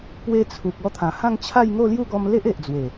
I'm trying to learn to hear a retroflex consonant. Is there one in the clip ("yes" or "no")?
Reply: no